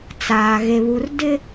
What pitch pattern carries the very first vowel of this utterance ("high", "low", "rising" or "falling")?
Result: low